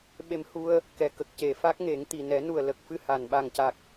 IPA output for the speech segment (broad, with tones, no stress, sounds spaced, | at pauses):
ɓ e˧ m h u˧ ə̯ | k ɛ˨˩ k ə˨˩ k̚ c e˨˩ f a˦˥ k̚ ŋ e˨˩˦ ŋ t̪ i˨˩ n ɛ˨˩˦ n u˨˩ ə̯ l ə˨˩ k̚ f ɨ˧ h a˨˩˨ n ɓ a˨˩ ŋ c a˨˩ k̚